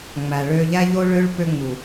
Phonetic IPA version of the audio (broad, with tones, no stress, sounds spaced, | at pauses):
ŋ͡m æ˨ ɭ ø˧ ʎ æ˧ ʎ o˧ ɭ ø˧ ɭ p ø˧ ŋ͡m u˨